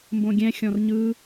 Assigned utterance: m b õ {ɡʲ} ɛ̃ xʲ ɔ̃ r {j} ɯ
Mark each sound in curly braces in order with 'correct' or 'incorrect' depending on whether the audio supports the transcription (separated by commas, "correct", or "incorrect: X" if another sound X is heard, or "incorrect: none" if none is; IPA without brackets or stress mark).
correct, incorrect: ɲ